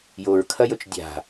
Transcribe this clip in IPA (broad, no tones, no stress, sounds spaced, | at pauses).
j o ɹ kʰ ɐ j ɵ t͡ʃ dʲ a̤